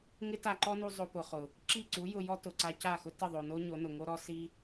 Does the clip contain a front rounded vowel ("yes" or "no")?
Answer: no